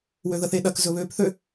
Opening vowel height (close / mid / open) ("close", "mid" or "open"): mid